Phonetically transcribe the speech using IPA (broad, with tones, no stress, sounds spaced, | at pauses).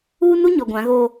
uː˦ n u˦ ɲ ɔ˨ ɡʷ ã˨˦ ɣ oː˦